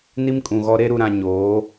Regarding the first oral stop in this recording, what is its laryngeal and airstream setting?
ejective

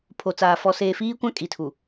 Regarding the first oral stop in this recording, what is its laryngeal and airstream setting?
aspirated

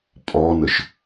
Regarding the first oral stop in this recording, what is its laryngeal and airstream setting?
ejective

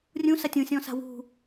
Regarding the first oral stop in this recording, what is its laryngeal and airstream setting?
plain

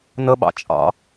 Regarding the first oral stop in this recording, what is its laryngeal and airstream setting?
implosive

